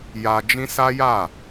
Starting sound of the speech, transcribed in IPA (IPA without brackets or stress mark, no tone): j